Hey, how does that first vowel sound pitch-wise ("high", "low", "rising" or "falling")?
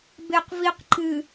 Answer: low